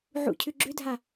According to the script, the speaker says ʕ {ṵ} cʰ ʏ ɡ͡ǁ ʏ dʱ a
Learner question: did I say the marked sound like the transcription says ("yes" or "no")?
yes